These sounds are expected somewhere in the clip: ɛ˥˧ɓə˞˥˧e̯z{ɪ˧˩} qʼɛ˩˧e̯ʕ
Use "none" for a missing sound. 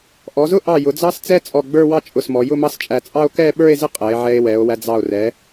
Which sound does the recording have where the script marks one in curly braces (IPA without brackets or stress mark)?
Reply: ɪ˥˧